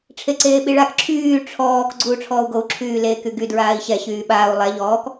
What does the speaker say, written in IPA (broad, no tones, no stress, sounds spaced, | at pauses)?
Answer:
ʈ͡ʂʰ e ǀ eː ɓ i ɭ a k ǁʰ yː ʈ͡ʂʰ ɔː k ɡ͡ǀ uː ʈ͡ʂʰ ɔː u̯ ɡ o u̯ ǁʰ yː l e k y ɡ y d ɹ aː i̯ ɕ ɛ ɕ yː ɓ aː u̯ lˠ ɛ ʎ ɔː k